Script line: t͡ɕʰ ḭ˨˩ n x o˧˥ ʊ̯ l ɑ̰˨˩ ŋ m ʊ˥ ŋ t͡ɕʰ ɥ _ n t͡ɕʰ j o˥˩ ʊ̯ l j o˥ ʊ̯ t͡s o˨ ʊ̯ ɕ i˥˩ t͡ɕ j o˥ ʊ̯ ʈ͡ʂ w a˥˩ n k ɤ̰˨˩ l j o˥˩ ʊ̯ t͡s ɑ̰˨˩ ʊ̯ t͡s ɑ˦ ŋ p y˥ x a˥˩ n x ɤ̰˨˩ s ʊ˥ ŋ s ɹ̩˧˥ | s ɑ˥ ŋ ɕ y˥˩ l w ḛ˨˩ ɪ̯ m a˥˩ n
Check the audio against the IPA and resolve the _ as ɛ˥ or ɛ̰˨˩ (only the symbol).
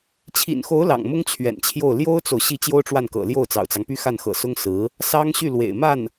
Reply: ɛ̰˨˩